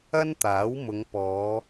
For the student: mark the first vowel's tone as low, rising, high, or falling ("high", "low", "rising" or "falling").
high